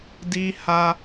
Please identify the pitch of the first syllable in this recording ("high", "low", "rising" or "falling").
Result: high